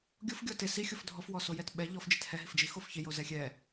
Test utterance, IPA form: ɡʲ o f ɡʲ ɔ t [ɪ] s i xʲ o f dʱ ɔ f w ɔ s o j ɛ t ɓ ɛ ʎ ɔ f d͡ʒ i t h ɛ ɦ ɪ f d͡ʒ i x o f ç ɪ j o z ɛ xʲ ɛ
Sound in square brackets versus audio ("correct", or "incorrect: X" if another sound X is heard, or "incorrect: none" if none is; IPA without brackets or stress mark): correct